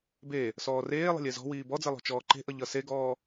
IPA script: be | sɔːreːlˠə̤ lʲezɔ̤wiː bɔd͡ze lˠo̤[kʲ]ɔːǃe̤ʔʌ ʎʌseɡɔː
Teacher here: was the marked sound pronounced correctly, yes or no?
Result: no